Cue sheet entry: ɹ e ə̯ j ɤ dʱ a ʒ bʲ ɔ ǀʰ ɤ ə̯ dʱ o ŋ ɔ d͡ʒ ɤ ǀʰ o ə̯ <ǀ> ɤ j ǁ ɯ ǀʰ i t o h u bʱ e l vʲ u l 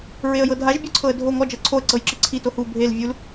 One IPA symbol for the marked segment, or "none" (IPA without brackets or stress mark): ǀ